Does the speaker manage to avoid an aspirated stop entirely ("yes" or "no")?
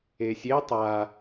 yes